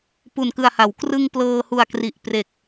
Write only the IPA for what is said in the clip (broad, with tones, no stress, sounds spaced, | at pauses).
p u˨˩ n k ɯ˨˩ a̯ h a˩˦ w k r ɯ˧ ŋ p l ɤː˧ h u˨˩ a̯ k r i˨˩ ʔ p r e˨˩ k̚